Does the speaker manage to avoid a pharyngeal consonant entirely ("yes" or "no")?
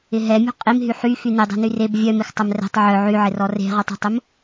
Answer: no